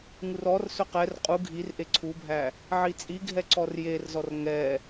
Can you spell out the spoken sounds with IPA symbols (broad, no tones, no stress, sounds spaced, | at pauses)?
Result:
ŋ u r ɔ r s ɵ q ɛ r qʼ u ɡʱ i r ʔ e ǀʰ u bʱ æ | ʕ i t͡sʼ i ɡʱ ɛ ǀ ɔ r j e r z ɔ r ŋ ɛ